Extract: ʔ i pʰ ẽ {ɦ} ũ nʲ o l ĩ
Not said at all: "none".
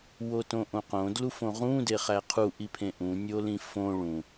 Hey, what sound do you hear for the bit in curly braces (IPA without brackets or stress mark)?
ʔ